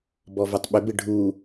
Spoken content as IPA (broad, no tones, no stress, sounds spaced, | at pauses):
b ɔ v o tˤ ɓ ʏ b ɪ ɖʱ u